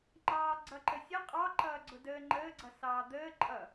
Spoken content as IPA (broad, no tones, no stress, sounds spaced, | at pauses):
ŋ͡ǃ ɑː ɡ͡ǀ ʌ ǃ ə sʲ ʌ qʼ ɑ ǃ ʌː ɡ͡ǀ ʊ d əː ŋ͡ǃ əː ɡ͡ǀ ʌ s ɑː d̪ əː ǃʼ ʌ